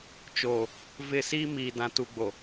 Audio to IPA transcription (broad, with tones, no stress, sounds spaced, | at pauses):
t͡ʃ oː˨ | v ɪ˦˨ s iː˦ m iː˨ d ã˨ t u˨ ɡ͡b o˨